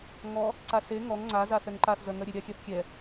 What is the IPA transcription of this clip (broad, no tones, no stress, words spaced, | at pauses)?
ŋɔ | ǀase ŋɔŋ ŋ͡ǀa zaθɛŋǃaθ zœŋœɾʲe ɾʲaxʲɛθkʲɛ